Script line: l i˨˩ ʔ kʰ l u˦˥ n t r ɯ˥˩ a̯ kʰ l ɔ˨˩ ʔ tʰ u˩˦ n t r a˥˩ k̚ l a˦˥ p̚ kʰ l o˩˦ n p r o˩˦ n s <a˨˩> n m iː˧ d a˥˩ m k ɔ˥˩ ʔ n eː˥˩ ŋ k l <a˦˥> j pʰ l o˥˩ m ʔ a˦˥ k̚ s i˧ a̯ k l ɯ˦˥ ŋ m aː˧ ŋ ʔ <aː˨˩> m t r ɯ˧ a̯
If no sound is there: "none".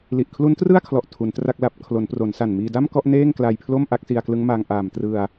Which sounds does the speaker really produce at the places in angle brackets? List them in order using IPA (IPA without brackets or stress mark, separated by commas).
a˨˩, a˧, aː˨˩